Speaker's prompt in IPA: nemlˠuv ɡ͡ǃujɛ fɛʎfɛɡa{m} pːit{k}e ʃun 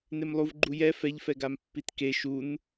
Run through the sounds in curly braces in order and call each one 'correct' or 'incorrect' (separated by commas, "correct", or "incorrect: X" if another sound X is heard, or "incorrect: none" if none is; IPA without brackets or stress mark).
correct, correct